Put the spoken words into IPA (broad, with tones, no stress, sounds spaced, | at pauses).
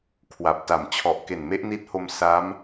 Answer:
kʰ w a˨˩ p̚ t a˨˩ m t͡ɕʰ ɔ˨˩ ʔ k e˨˩ n m e˦˥ ʔ n i˦˥ t̚ h o˧ m s a˦˥ m